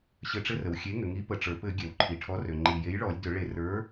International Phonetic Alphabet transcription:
ɕ ɘ˧˩ ʈ͡ʂ ɘ˦ r ə˩ w xʲ e˨˥ ŋ ʏ˩ ŋ i˨˥ p ə˩ ʈ͡ʂ ə˞˩ p ɘ˧˩˧ ɡʲ ɛ˩ w ǃʰ i˩ ʈʰ ɔ˨˥ r ø˩ ŋ͡ǃ i˩ j e˨˥ j ɭ ɔ˧˩˧ lʲ d ʏ˧˩˧ ɭ e˧˩˧ r ə˞˨˥

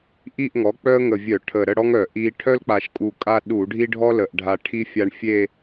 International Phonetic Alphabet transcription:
ʔ i˥˧ ʔ ŋ ɔ˩˥ k͡p œ˥ ə̯ ŋ ə˨˩ vʲ œ˧˩˧ ʈʰ ə˨˩ ɾ ə˥˧ ɽ ɔ˥ ŋ œ˧˩˧ ʔ i˧ ʈʰ œ˥ l k͡p a˨˩ ʃ kʼ u˨˩ kʼ a˥ ɗ u˧˩˧ ɖʱ i˥ ɖʱ ɔ˥ l ə˨˩ ʔ ɖʱ a˧ ʈʰ i˥ fʲ a˧ ɳ fʲ e˥˧

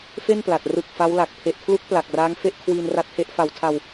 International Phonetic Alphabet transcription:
f e˥˩ n p l a˨˩ t̚ r ɯ˨˩ k̚ f a˦˥ w l a˨˩ k̚ pʰ e˨˩ ʔ kʰ l u˦˥ k̚ p l a˨˩ k̚ r aː˦˥ ŋ f e˥˩ ʔ kʰ w iː˧ n r a˦˥ t̚ h e˦˥ ʔ f a˨˩ w tʰ a˧ w

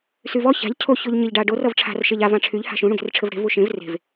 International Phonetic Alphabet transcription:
s y v ɔ ç a̤ ʎ cʰ o ç o ʎ ɲ ɘ ʎ ɖ a ɖ o r ʌ v ʈ͡ʂʰ a̤ r ʃ e ʎ a v ã ʈ͡ʂʰ y ʎ h a̤ ʃ ũ ɽ ũ ɡ e̤ r ʈ͡ʂʰ ɘ v ɽ e̤ v u ʃ ẽ v r e̤ v

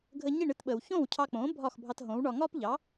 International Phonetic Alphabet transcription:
ɡʱ ə˧ ɲ i˥˩ ɳ ɨ˧ t ɓ əː˩ w ç õː˥˩ w cʰ ɑ˧ k͡p õː˩˥ bʱ ɒː˥˩ x bʱ ɑ˧ t ɦ õː˩˥ w ɳ ɒ˧ ŋ ɒː˥ p ʎ ɑ˩˥

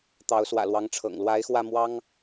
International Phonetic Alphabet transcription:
t̪ ɑ˨˦ ʊ̯ s w ä̰˨˩ l w ɑ˨˦ ŋ ʈ͡ʂʰ ɤ̰˨˩ ŋ l w a˨˦ ɪ̯ x w ä˧ m w ɑ˦ ŋ

